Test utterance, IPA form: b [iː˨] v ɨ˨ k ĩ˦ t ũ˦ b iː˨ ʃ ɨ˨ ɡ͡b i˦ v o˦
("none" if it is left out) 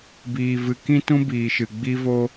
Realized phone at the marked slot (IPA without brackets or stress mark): iː˨